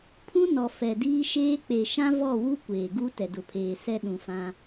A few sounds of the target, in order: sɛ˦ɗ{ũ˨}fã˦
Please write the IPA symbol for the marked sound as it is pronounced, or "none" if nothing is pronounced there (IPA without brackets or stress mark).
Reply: ũ˨